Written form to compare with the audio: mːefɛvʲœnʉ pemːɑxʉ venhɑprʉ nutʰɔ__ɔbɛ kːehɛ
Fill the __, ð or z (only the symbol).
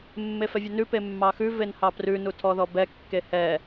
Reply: ð